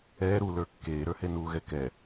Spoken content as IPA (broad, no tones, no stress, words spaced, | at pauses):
ɛː ɾulə˞ kːeːɾə˞he nuːɣɛkɛ